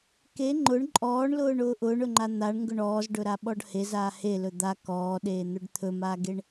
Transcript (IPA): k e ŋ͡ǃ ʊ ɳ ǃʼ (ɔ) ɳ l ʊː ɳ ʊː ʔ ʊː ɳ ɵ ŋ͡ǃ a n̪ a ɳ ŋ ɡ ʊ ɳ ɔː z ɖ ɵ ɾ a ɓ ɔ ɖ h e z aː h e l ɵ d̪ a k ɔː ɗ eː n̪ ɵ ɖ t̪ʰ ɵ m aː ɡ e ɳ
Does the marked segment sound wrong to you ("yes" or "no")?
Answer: yes